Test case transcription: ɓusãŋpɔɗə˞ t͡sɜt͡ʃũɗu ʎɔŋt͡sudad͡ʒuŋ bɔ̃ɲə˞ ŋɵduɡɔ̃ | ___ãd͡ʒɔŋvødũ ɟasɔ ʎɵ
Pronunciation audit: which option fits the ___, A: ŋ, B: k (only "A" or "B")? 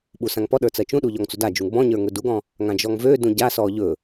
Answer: A